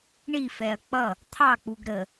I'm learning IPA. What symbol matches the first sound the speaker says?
ɳ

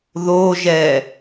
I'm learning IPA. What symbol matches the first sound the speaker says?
ð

